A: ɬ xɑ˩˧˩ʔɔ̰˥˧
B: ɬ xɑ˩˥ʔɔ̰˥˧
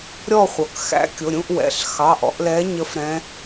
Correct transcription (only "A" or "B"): A